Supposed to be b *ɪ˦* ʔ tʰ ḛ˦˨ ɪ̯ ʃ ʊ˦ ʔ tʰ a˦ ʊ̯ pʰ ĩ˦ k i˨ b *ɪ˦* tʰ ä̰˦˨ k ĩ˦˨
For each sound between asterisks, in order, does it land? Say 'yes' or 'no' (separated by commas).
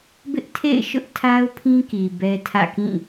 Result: yes, no